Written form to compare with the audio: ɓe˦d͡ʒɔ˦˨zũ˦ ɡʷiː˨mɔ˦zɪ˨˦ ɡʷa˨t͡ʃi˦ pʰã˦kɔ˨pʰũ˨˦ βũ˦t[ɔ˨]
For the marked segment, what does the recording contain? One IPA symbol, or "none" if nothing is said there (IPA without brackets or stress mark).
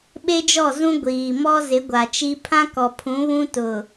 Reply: ʊ˨